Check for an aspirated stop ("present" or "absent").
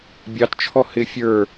present